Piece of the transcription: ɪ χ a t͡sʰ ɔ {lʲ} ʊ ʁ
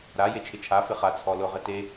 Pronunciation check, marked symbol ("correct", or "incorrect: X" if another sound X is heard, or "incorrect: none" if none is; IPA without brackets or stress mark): incorrect: l